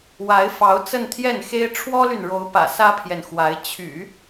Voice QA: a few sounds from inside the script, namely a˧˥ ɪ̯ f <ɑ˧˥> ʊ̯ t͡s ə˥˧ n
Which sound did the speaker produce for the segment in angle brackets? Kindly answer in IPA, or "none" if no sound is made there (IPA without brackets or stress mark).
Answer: ɑ˧˥